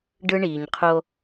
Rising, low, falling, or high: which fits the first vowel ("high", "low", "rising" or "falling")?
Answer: high